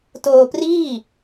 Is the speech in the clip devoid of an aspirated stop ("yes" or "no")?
yes